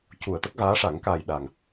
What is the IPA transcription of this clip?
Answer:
cu˨˩˨ə̯ t̪ə˦˥k̚ɣaː˧˥ʂa˨˩˦ŋ kaː˨˩j ɗa˨˩ŋ

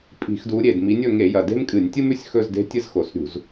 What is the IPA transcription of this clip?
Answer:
pʼi̤˧˩˧xdu˨˦ɾʲe˨˩d mi˨˦nʲɵ˥˧ŋe˧˩˧jɐ˨˩ de̤˥mkʼɨ˧˩˧nʲtʲɨ˥m ʉ˥˧sʲxɵ˥˧zde̤˥tʲɨ˥z xo˨˩sɾʲṳ˧˩˧z

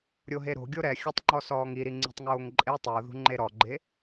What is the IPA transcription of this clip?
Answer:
ɾʲoɦeɾo̤ ɡʲoɾɛ xʲɘtˤŋ͡ǃɔ sɔːŋiɾi ŋ͡ǀi̤tˤŋoːŋǃʼe tˤuo̯ðṳ ŋ͡ǃeɾɔɡ͡ǃe

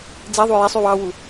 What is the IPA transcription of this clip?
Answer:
d͡zeðˤu jesˤ ywɑwu

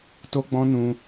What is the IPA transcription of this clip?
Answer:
to˦ɡ͡bɔ̃˦ nũ˧

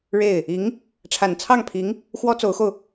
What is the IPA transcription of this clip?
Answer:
ɻe˥˩ɪ̯ | i˧˥ŋ | ʈ͡ʂʰa˨˩nt͡sʰɑ˥˩ŋpʰi˧˥ŋ | xwɔ˥t͡so˧˥ʊ̯xo˧ʊ̯

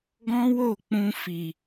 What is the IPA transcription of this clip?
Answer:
ɡɔ̃˦wo˦˨ k͡pũ˧ fi˨

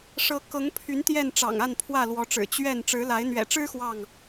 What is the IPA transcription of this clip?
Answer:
ʂɤ˨˦ kɤ˨˦ŋpʰy˨˦n t̪jɛ˥˨n ʈ͡ʂɑ̰˨˩ŋa˥˨n pʰwä˥˨lwɔ˨˦ʈ͡ʂɻ̩˨˩ t͡ɕɥɛ˥˨n ʈ͡ʂɻ̩˨˦la˨˦ɪ̯ n̪ɥɛ̰˨˩ʈ͡ʂɻ̩˦ xwɑ˥˨ŋ

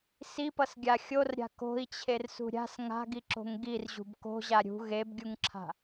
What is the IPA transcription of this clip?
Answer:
sipʌsɡʲa xʲorɾʲa̤ ko̤i̯t͡ɕʰersṳ ɾʲa̤s ŋa̤ɡiǁo̤ŋ ɡirʑṳb ko̤ʑa ɾʲṳ ɣebɡʲuŋǁʰa̤

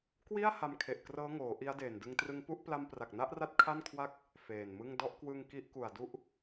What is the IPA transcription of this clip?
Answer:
kwi˥˩a̯ ha˧mkʰe˨˩ʔkrɤː˦˥ŋoː˩˦ ʔi˦˥a̯deː˨˩ndɯ˧ŋ trɯ˧ŋpu˥˩ʔ pla˧mpra˨˩k̚na˦˥ʔra˦˥t̚ kʰa˥˩nkʰwa˥˩k̚ | feː˨˩nmɯ˥˩ŋ dɔ˦˥ʔkwɯ˧ŋ ki˦˥ʔku˨˩a̯du˦˥ʔ

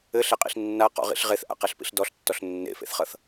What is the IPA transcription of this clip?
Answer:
ɘɬɛqʼḭɬ nːaqɔ̰ʁḭɬ ʁeθʔa̰qɛɬpḭɬ dɔɬtːɔɬ nːḛfḛθχʌθ

